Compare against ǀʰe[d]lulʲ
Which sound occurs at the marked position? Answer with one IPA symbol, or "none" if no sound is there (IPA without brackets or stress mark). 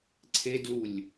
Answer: d